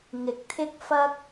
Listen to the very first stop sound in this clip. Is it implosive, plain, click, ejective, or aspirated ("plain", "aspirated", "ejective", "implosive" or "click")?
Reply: plain